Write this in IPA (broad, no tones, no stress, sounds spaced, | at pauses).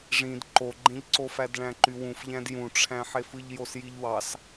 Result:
ʐ ĩ d ǃ o ɡ͡ǃ ẽ ʎ ǀ o f æ d ɭ æ̃ ǃ y w ũ f ʎ æ̃ d j ũ ʈ͡ʂʰ æ̃ ħ e f ɯ ʎ j o s j i ʎ w ɑ s